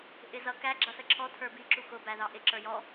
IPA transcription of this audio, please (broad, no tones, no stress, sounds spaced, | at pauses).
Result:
ʔ ɪ z ʌ k æ ɡ͡ǁ ʌ s ə ǁʰ ɔ tʰ ə˞ b i ǁ u x ʊ b æ ð ɑ ʔ ɪ ǁ ə˞ j ɔ